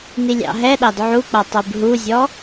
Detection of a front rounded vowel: absent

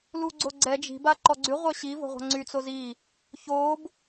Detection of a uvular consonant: present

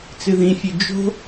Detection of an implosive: absent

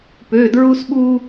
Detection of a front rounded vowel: present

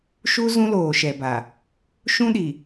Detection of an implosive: present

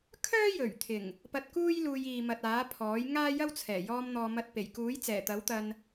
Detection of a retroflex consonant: absent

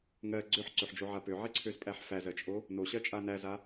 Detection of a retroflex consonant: absent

